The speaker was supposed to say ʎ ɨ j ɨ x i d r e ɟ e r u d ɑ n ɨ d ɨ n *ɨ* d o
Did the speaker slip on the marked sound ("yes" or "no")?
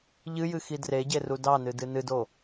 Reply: no